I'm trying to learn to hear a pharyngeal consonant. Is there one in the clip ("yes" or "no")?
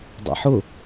yes